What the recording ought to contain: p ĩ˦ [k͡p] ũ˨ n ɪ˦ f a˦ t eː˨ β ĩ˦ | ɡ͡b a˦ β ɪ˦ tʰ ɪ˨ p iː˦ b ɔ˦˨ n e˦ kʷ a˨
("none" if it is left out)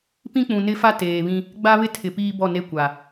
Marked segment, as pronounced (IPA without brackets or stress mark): k͡p